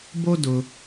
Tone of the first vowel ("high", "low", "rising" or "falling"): high